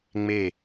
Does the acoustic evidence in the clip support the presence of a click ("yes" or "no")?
no